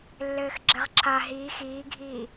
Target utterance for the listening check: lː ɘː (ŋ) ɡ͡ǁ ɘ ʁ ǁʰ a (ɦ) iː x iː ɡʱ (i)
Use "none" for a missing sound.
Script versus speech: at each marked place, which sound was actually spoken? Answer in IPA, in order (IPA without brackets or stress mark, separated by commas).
x, ɦ, iː